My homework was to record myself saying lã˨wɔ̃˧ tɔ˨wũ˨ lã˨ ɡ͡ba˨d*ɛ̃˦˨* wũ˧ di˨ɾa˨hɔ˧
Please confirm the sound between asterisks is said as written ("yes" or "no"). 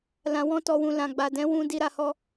no